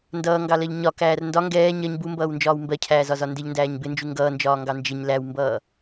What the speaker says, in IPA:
n d ʌː ŋ ɡ ɑ l ɜ ʎ ɲ ɒ k æː r n d ɒ ŋ ɡ ɛː ɲ ɜ ɲ b u m b ʌː w n d͡ʒ ɒː w m b ɜ cʰ æː z ɒ z ɒ n d ɪ ʎ n d æː ɲ b ɪ n d͡ʒ u ŋ ɡ ʌː n d͡ʒ ɒː ŋ ɡ ɑ n d͡ʒ ɪ ɲ l æ w m b ʌː

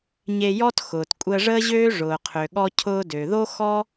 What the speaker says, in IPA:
ɲ e˧ j ɔ˥ t x ʊː˩ t kʷʼ əː˧ ʐ əː˥ ʑ øː˥ ʐ ʊː˩ qʰ ø˩ ɠ ɔ˧ cʰ ʊː˧ d ø˩ ð o˥ x ɔ˥

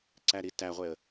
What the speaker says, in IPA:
ǀ æ ɾ i t æ ʁʷ e ə̯

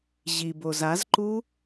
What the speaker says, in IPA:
ʑ i b o z a z ǃ u

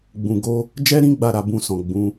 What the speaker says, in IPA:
ɡ͡b ũ˨ ɡ o˧ | d͡ʒ ɛ˦ ɾ ĩ˦ ɡ͡b a˦˨ ɾ a˨ b ũ˧ s ɔ̃˨ ɡ͡b ũ˨˦

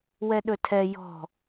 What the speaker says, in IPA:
w ɛ ɗ ɵ tʰ ɛ j ɔ̤

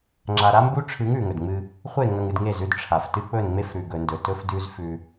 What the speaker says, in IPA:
ŋ͡ǁ a˨ ɾ a˦ m b u˦ ʈ͡ʂʰ ɨ˨˦ ŋ ʉ˨ ŋ ɵ˨ d ŋ͡m ɨ˦ | χʷ e˦˨ ŋ ɐ˨ ŋ ɨ˨ d ŋ e˦˨ z ʉ˦ d ʈ͡ʂʰ a˨ f t ɨ˦ k͡p ɵ˦˨ n ŋ͡m e˦ f ɾ ʉ˨ ɡ ɵ˨ n d ɵ˨ t ɵ˦ f d ʉ˦ z f ʉ˦

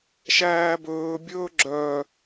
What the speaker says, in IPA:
ʃ æː b ɵː bʲ ɵː ɡ͡ǁ œ

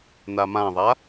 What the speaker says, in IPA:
n a m ã ðˤ a

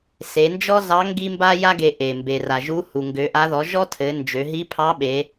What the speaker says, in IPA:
s e˩˧ n d͡ʒ ɔ˥ z ɑ˧˥ ŋ ɡ i˥ m b a˥ j a˥ ɡ e˧ ʔ e˩ m b e˩ r a˩ ʒ u˧˥ h u˩ ŋ ɡ ø˩˧ ʔ a˧˥ ð ɔ˩˧ ʒ ɔ˥ tʰ ɘ˩˧ n d͡ʒ ø˩˧ ɦ i˧˥ pʰ ɑ˧˥ ɓ e˩˧

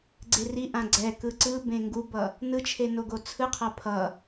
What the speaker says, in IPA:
ɡ͡ǀ e r i ʔ ã ɡ͡ǀ ɛ k ɯ ǀ ɯ b ẽ ŋ ɡ u b ʌ | n ɯ t͡ʃʰ e n o ɡ o t͡sʰ ɯ qʰ a pʰ ʌ

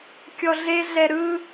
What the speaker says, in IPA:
kʲ ɔ ɮ e ɮ ɛ ɾ ɯ

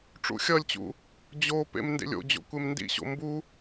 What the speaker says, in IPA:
ʈ͡ʂ ṵ xʲ ʌ lʲ t͡ɕ ṵ | d͡ʑ o p ḛ m n d ḛ lʲ o̰ d͡ʑ o̰ kʷ e m n d ḭ ɕ o̰ m b u

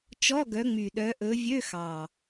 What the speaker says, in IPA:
t͡ʃ ɔ˧˥˧ ɡ œ˨˦ ŋ͡m y˨˩ ɗ œ˨˦ ʔ ɵ˨˦ vʲ ø˧˥˧ x ɑ˨˩

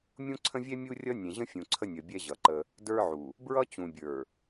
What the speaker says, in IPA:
mʲ ũ˦ ǀʰ ə̃˦ vʲ ɛ˦ mʲ u˦ rʲ ʌ˦ nʲ ɛ̃˨ ʑ ə̃˦ fʲ ũ˨ ǀʰ ə˦ nʲ ʌ˨ bʲ ɛ˦ ʑ ʌ˨ ǃ ə˦ | d ə˞˦ ʕ u˨ | b ɹ ʌ˦ t͡ɕ ũ˨ bʲ ə˞˨

